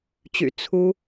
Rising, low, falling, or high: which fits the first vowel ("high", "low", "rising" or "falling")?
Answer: low